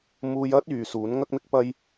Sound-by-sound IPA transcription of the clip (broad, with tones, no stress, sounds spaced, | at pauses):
m uː˧ j ɐ˥ t̚ yː˨ s uː˨˥ n ŋ ɐ˥ k̚ m ɪ˥ k̚ p ɐ˥ j